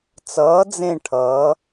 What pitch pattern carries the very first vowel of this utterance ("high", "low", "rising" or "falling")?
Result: rising